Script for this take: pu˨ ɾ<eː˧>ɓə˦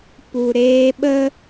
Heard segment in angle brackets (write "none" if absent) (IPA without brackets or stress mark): eː˧